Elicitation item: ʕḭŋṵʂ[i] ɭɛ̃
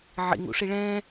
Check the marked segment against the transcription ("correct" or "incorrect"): correct